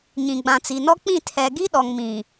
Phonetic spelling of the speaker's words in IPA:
ɲ ĩ˨ ɡ͡b ã˨ t͡s i˨ n ɔ˦ k͡p ĩ˦˨ tʰ ɛ˨ ɡ i˦ ɗ ɔ˨ ŋ m ĩ˨

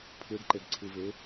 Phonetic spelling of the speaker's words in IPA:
pʰ ɯ ɖ ǃ e ɖ ǀʰ ɯ v e

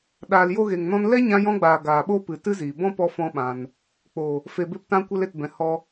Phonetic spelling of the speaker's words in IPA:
ɗ aː˨ l j o˧ ɣ e˨ ŋ n ɔ̃˧ n l ɛ˦ ɲ ã˧ j ɔ̃˧ ɡ͡b aː˨ ɡ aː˨ ɓ o˦ p ɨ˨ t ɨ˦ z iː˨ b ɔ̃˦ p ɔ˧ f ɔ̃˦ ɓ ã˧ n | k͡p o˨ | f e˨ b e˧ p t ã˧ kʷ ɛ˧ l e˨ t b ɛ̃˨ h ɔ˧

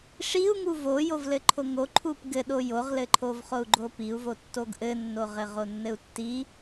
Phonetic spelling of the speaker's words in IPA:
ʂ i u̯ ŋ u v o j o v l ɘ ǃʰ o ŋ o ǃʰ u p ɡ ɘ ɗ o j o ʁ l ɘ ǃʰ o v χ o u̯ ɡ͡ǃ o p i u̯ v o tː o ɡ ʔ ɘ nː o ʁ ɘ ʁ o nː ɘ u̯ tː i

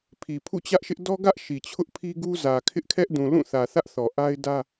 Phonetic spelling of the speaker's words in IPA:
pʰ i˨ pʰ ṵ˦˨ t͡ɕ ä˦ ʔ ʃ ɪ˦ ʔ d ɔ˦ ɡ ä˦ ʔ ʃ i˨ t͡ɕʰ ʊ˦ ʔ pʰ i˦ ɡ u˦ z ä˨ kʰ ɪ˦ ʔ kʰ ɛ˦ ʔ d ũ˨ l ũ˦˨ θ ä˨ θ ä˦ ʔ θ ɔ˨ ʔ a˦ ɪ̯ d ä˦

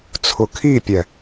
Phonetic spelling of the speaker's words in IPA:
t͡sʰ ʊ kʰ i pʲ ɛ

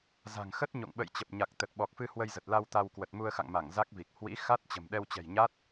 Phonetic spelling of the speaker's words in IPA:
z a̤˨˩ ŋ x ə˦˥ t̚ ɲ o̰˧˨ ŋ ɓ ə̰˧˨ j t͡ɕ ə˨˩ p̚ ɲ a˨˩ k̚ t̪ ə˨˩ t̚ ɓ ɔ˨˩ k̚ f ɨ˧ h w ə˧ j z ə˨˩ t̚ l a˧ w t̪ a˧ w k w ə˨˩ t̚ m u˧ ə̯ x a̰˧˨ ŋ m a˧˩ ŋ z a˦˥ k̚ v i˨˩ k̚ h w ḭ˧˥ x a˦˥ t̚ t͡ɕ ə̤˨˩ m ɗ ɛ˧ w t͡ɕ ɛ̤˨˩ j ɲ a˦˥ t̚

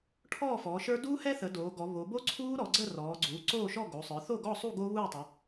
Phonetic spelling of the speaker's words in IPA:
ʈʰ ɔː˥˨ f ɔː˩˧ ʃ ə˞˦˥ d uː˦˥ h ɛ˦˥ θ ə˩˧ d oː˩˧ ɡ ɔ˩˧ β o˩˧ b o˦˥ ǀʰ uː˦˥ ɾ ɔ˩˧ ɡ͡ǀ ə˥˨ r ɔː˩˧ ɡ͡ǀ uː˩˧ ǀ oː˥˨ ʃ ɔ˥˨ ɡ o˩˧ sˤ ə˞˩˧ θ o˥˨ ɡ ɔ˥˨ sˤ u˥˨ ɡ o˦˥ β uː˥˨ tˤ ə˩˧

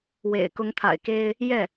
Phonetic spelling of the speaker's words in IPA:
w ḛ˨˩ ɪ̯ k ʊ˧˥ ŋ t̪ʰ a̰˨˩ ɪ̯ k e˥ ɪ̯ | j ɛ˥˩

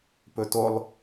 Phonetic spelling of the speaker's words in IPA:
p ɵ t o lˠ

